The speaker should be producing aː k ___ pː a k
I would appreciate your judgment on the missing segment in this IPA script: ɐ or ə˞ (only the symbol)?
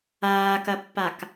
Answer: ɐ